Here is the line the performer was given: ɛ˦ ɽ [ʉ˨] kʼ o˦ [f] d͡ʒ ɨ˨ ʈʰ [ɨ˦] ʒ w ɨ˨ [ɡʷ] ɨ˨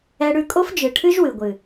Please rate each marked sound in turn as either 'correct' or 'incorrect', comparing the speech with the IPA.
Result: incorrect, correct, correct, correct

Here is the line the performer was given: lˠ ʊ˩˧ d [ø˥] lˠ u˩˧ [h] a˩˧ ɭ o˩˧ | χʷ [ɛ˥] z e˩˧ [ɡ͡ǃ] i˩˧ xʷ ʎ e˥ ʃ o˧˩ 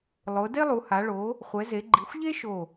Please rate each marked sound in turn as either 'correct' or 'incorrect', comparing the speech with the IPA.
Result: incorrect, correct, incorrect, correct

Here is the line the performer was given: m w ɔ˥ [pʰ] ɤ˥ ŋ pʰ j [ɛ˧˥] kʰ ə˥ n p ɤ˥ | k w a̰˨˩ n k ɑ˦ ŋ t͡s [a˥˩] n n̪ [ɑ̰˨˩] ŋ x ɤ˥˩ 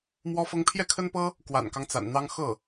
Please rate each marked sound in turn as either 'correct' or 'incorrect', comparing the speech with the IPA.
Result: incorrect, incorrect, incorrect, incorrect

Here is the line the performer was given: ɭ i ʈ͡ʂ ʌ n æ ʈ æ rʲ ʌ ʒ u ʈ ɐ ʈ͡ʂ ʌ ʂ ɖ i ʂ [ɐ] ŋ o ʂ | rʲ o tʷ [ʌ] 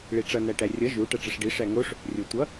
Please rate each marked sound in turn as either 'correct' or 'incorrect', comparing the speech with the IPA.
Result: incorrect, correct

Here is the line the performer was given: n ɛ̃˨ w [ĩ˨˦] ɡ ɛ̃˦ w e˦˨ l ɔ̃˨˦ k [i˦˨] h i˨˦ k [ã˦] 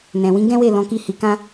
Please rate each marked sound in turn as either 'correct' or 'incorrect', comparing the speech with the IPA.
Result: correct, correct, correct

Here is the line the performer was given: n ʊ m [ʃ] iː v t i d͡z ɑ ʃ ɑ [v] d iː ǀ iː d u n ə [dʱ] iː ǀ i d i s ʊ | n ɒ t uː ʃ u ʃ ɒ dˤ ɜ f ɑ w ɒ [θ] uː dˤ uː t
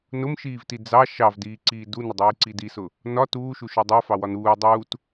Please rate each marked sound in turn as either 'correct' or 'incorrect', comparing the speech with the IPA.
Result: correct, correct, incorrect, incorrect

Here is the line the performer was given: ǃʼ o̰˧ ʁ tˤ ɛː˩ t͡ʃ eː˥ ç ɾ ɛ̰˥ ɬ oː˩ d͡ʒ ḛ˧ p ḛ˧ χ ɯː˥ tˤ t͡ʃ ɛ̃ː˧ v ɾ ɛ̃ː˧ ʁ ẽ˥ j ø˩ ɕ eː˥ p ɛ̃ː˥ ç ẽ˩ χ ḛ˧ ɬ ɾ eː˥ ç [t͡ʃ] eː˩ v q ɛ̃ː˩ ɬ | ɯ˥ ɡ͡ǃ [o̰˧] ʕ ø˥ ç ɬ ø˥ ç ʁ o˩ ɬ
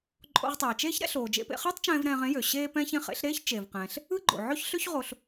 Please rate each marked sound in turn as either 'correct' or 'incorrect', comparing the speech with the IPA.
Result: correct, incorrect

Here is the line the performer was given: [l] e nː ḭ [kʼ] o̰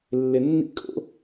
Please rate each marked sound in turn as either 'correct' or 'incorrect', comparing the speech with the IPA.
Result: incorrect, correct

